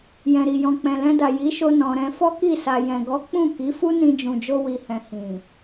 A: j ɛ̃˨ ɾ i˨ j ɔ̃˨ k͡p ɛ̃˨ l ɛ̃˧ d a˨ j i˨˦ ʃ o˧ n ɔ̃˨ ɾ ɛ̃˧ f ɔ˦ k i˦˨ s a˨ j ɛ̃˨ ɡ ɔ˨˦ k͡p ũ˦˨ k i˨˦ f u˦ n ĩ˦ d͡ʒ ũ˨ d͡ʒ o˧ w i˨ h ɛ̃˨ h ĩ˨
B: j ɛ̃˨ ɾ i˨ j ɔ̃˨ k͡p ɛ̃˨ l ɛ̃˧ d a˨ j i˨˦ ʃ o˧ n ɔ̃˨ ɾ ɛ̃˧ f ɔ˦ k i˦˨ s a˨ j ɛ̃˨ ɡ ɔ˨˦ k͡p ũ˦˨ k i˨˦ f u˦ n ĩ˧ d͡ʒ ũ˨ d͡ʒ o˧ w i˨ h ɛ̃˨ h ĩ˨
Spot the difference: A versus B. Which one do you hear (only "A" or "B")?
B